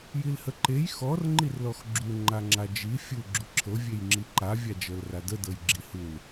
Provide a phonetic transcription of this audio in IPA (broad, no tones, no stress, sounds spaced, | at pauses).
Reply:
j i l h ə ǃ e j x ɔ r ŋ͡ǃ i r l ɔ x ɡ͡ǁ u ŋ͡ǃ a ŋ͡ǁ a d͡ʒ i fʲ u ɡ͡ǁ u ǁʰ ɤ vʲ e j ŋ͡ǁ i ǃ a vʲ a d͡ʒ ɤ l r a d ə d ɤ j ɡ͡ǁ i h u l